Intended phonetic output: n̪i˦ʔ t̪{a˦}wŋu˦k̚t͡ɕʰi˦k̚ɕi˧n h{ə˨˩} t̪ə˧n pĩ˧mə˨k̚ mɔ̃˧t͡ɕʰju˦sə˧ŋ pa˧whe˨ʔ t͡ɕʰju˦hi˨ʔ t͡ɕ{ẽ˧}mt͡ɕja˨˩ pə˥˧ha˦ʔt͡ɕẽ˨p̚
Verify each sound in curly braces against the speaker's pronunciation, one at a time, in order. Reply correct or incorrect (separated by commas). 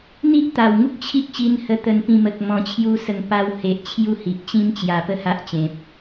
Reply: incorrect, incorrect, incorrect